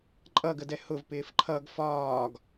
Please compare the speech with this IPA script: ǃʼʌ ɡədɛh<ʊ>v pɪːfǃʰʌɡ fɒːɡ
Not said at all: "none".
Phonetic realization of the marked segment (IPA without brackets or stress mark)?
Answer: ʊ